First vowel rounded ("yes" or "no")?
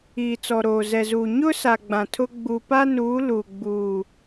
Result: no